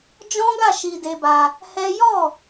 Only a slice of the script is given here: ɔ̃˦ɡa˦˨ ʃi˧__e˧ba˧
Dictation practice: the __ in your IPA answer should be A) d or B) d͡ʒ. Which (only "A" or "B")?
A